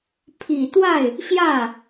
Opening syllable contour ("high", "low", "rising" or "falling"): low